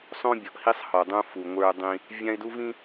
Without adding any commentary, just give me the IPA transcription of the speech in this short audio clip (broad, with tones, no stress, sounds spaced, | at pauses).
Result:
sˤ õ˦ bʲ ɔ˨ ʔ h i˦ sˤ h ɔ˨ dˤ ũ˦ f u˨ ŋʷ ə˞˦ dˤ ĩ˦ | vʲ ã˦ ɪ̯ d u˦ v ĩ˦